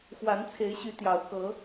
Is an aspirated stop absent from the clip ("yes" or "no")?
no